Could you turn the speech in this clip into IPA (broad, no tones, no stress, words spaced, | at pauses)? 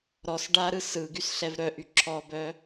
ɾɔs ɖaɾɯ sɯɡys ɬɛvɾœʔy ǁʰɔbœ